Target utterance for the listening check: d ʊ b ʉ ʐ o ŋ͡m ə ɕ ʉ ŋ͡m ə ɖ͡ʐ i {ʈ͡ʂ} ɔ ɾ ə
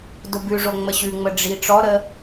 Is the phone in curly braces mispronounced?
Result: no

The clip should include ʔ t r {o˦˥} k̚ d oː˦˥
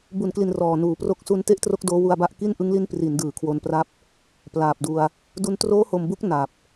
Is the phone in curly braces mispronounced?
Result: no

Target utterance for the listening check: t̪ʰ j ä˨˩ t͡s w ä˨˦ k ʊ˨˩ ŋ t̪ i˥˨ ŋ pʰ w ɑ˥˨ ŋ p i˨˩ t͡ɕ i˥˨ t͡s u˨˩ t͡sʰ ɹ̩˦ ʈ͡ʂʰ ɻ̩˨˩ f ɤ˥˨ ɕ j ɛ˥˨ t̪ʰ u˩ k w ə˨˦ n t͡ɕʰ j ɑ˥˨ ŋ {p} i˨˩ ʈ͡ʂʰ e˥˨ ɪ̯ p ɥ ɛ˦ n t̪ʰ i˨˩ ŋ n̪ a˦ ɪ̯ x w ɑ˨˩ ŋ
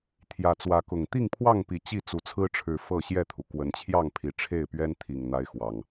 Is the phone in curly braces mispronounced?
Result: yes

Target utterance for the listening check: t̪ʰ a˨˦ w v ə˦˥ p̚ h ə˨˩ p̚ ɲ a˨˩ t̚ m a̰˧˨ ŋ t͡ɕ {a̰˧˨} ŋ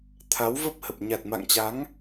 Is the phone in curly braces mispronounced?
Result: yes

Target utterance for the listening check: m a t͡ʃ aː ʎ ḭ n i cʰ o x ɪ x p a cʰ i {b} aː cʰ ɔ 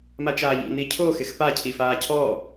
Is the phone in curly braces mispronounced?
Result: yes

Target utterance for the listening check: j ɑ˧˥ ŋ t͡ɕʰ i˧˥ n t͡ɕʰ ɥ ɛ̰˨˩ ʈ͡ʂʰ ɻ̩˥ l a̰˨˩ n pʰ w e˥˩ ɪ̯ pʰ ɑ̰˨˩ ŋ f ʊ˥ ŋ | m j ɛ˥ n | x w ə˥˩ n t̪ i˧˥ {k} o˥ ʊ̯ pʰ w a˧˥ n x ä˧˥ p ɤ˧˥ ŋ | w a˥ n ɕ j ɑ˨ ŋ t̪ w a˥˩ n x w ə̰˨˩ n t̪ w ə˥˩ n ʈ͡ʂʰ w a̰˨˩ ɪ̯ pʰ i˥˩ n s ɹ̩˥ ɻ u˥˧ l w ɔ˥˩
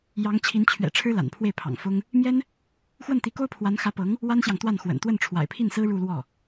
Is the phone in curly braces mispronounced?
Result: no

